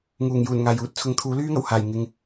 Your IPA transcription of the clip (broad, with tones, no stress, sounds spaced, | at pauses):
ŋ uː˨˩ ŋ j uː˨˩ n ŋ aː˨˩ j uː˥ t̚ t͡sʰ ʊ˨˧ ŋ t̪ʰ uː˨˥ l yː˥ ŋ ɐ˨˩ w h aː˨˩ j ŋ ɪ˨ ŋ